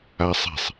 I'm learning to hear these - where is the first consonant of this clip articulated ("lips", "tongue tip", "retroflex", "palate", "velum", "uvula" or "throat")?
tongue tip